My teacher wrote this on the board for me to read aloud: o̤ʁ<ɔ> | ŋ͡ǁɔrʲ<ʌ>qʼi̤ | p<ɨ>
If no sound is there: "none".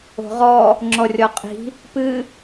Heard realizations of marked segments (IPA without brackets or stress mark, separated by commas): ɔ, ɔ, ɨ